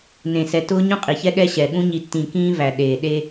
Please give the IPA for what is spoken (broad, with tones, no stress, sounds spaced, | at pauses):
n ẽ˨ s ɛ˨ t ʊː˦ ɲ ũ˦ qʼ i˨ ç ɛ˦ ɠ ɛ˦ ɕ ɛ˨ ɠ ũ˦ ɲ i˨ tː ĩ˨ k ĩː˦ v æ˨ ɗ eː˨ ɗ e˦